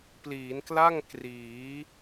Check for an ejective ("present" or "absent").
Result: absent